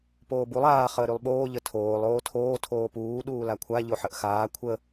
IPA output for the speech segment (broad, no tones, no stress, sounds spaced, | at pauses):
p oː b u lˠ aː χ əː ɾ y lˠ ɓ oː ʎ ə tʰ oː lˠ oː tʰ oː tʰ oː p uː ɗ uː l a kʷʰ a ʎ o ħ ə ʔ x aː kʷʰ ə